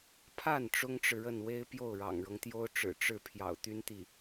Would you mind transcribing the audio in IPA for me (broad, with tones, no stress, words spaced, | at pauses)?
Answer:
pʰa˥˩n ʈ͡ʂʊ˥ŋʈ͡ʂɻ̩˨ɻə˥˩nwe˥ɪ̯ pjo˥˩ʊ̯ɻɑ̰˨˩ŋɻɤ˦ŋt̪jo˥ʊ̯ ʈ͡ʂɻ̩˨˩ ʈ͡ʂɻ̩˥˩ pʰjɑ̰˨˩ʊ̯t̪y˥nt̪i˥˩